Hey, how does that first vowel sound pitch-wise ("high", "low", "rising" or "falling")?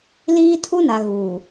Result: high